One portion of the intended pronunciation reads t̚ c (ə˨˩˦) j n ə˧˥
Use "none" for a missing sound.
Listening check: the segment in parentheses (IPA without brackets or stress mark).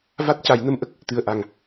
a˨˩˦